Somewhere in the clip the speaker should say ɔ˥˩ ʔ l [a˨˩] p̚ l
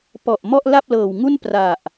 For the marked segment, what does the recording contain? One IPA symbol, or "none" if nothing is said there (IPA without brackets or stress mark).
a˥˩